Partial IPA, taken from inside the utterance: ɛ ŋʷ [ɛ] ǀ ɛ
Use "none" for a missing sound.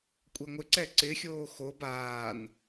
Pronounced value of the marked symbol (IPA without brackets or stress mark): ɪ